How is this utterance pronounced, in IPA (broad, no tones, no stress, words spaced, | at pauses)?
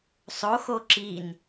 sˤoxo ǁin